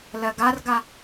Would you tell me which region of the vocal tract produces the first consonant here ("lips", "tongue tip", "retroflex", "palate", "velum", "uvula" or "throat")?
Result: tongue tip